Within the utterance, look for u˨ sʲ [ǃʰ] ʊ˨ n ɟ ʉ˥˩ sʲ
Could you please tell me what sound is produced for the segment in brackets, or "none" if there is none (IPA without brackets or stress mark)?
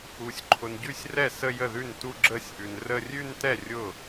ǃʰ